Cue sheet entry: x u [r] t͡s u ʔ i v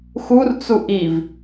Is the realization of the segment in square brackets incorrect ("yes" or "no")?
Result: no